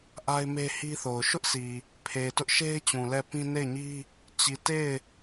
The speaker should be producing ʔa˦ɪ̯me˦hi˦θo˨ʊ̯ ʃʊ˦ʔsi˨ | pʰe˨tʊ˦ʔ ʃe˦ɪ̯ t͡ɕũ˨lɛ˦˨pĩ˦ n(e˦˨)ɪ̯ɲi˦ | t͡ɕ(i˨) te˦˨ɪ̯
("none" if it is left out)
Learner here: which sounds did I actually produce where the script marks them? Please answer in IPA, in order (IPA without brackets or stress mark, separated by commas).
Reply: e˦˨, i˨